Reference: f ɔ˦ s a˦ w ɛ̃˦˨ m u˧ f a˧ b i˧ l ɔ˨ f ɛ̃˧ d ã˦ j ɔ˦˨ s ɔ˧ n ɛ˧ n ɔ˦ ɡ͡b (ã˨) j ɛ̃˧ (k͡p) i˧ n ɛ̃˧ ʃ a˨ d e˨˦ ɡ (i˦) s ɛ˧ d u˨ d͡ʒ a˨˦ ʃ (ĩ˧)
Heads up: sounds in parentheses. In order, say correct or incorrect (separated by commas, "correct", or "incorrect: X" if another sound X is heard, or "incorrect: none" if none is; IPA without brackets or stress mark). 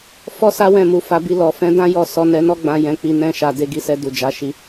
incorrect: ã˧, correct, incorrect: i˧, incorrect: i˧